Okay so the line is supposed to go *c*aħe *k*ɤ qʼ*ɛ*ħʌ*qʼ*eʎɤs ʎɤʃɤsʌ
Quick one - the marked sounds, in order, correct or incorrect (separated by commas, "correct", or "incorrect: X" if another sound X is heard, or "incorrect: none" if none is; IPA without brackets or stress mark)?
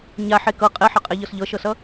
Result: incorrect: ɲ, correct, correct, correct